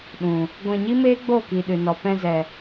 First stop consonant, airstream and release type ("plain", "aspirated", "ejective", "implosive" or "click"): implosive